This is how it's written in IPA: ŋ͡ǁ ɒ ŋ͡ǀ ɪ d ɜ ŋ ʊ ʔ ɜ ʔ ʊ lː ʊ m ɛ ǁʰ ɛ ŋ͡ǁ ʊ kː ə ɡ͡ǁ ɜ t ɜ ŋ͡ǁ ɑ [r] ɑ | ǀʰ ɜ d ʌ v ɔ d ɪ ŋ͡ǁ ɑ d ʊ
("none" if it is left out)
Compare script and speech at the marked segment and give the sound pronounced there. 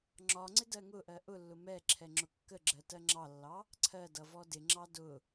lː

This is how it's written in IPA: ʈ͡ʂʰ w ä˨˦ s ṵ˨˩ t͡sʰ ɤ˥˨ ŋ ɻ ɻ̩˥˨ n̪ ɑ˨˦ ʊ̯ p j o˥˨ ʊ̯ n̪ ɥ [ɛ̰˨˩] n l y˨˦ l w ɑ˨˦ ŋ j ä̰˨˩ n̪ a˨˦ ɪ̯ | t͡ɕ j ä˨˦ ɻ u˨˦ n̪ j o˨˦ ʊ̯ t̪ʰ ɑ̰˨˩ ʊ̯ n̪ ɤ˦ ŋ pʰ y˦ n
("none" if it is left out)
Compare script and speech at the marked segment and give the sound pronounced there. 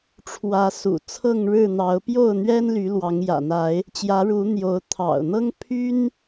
ɛ˦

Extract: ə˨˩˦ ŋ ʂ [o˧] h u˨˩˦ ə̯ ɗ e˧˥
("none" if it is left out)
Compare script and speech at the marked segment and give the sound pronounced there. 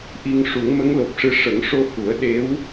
o˧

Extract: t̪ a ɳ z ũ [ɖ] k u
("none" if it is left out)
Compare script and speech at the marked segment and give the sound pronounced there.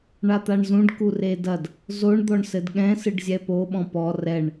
ɖ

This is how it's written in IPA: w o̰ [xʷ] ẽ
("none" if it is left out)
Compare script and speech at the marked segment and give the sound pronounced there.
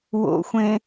xʷ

